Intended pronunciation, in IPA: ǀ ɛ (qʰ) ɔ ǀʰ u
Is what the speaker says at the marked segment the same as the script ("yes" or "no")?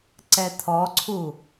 no